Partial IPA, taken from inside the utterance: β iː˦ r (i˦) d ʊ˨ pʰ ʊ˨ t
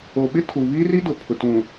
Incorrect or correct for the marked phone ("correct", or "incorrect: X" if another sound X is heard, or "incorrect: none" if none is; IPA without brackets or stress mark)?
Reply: correct